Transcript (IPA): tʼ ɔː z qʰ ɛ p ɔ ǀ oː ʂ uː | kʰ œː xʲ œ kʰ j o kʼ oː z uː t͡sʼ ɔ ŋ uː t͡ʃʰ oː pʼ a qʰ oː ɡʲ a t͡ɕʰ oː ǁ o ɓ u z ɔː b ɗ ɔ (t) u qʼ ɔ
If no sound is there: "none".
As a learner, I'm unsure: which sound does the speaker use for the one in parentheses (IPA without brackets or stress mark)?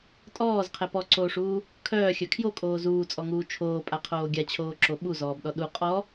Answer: ɗ